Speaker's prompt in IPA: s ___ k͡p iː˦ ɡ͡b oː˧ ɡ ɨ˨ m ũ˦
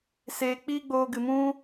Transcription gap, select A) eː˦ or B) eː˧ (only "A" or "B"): B